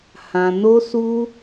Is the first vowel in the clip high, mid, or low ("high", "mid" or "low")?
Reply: low